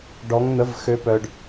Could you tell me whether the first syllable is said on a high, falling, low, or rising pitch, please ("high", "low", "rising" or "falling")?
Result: rising